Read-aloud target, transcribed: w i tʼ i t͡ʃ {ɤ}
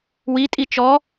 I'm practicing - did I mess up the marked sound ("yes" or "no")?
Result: yes